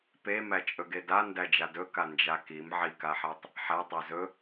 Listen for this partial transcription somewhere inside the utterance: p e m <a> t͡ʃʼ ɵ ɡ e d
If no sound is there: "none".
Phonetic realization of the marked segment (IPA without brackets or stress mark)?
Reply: æ